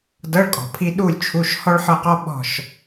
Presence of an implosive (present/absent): present